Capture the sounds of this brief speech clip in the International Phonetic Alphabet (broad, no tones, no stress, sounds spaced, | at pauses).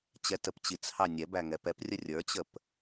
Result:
t͡ɕ ɛ t ə p t͡ɕ i t͡s h ɑ nʲ ɛ b æ ŋ ɛ p ɛ p rʲ ə rʲ ə˞ t͡ɕ ə p